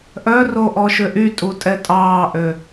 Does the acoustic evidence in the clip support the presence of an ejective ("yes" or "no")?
yes